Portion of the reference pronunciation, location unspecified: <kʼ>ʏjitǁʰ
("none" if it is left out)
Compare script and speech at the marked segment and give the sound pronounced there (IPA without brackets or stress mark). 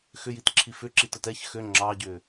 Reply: x